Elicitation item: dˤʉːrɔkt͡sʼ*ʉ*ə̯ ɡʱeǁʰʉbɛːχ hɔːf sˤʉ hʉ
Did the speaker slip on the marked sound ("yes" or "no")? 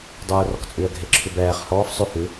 no